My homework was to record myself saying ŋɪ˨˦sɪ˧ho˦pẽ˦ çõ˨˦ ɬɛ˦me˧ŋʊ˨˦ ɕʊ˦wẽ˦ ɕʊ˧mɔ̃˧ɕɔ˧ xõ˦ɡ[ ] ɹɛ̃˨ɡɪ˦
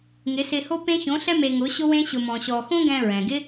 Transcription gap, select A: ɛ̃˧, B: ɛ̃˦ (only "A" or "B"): A